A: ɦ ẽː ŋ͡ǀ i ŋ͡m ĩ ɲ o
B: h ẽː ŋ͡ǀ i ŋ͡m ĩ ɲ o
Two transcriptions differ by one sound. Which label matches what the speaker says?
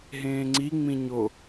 A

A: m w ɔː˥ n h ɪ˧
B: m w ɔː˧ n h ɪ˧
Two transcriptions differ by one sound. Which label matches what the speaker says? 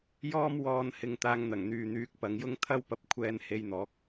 B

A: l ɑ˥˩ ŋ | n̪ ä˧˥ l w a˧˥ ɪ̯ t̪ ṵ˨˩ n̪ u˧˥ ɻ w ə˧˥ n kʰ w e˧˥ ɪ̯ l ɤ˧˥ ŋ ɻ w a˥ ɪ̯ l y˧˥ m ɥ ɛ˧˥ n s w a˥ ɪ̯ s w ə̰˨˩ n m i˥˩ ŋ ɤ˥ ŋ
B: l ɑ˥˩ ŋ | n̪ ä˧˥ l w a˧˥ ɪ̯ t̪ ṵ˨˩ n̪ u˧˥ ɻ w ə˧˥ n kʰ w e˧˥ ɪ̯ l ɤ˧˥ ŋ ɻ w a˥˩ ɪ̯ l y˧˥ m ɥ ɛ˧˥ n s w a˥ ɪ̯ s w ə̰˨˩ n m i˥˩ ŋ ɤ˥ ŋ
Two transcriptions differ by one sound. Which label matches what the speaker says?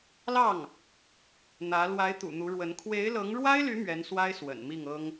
A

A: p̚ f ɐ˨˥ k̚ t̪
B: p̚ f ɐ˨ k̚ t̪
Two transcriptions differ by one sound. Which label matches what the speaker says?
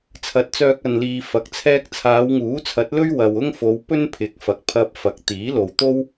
A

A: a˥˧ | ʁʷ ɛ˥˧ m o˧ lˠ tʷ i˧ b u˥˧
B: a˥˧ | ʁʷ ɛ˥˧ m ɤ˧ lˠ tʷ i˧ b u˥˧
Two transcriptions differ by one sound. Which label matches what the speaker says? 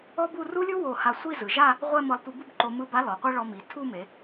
B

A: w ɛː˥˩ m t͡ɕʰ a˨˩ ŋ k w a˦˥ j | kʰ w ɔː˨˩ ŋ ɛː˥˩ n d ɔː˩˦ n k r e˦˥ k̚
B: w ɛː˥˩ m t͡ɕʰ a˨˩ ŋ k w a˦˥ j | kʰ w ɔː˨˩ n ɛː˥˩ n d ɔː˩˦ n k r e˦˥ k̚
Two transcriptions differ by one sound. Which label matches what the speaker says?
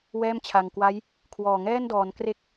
A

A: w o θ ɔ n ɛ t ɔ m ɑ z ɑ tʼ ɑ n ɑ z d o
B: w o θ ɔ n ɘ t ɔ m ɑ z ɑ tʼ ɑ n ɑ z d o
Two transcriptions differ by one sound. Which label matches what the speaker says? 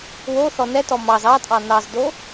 A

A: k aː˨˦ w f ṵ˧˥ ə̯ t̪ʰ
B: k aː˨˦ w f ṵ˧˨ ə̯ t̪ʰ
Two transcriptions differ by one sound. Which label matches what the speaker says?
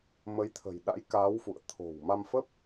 B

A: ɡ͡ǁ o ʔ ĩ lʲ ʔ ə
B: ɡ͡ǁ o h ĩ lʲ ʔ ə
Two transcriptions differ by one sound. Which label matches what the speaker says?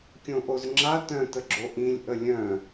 A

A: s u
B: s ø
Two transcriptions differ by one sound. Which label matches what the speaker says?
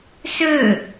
B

